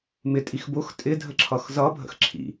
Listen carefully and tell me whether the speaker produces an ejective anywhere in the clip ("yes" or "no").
yes